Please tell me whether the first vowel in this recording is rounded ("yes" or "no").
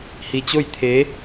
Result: no